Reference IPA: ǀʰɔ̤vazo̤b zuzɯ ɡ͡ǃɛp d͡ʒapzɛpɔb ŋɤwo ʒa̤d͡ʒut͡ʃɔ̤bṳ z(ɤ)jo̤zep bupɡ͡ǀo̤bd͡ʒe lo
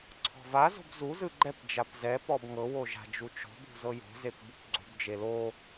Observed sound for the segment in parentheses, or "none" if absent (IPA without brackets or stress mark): ɤ